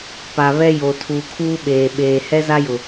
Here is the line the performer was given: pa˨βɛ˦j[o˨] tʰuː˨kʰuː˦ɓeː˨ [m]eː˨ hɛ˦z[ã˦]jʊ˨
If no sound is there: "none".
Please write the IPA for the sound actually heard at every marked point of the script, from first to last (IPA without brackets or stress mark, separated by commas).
o˨, ɓ, a˦